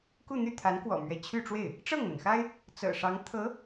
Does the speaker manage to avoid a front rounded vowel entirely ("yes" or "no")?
no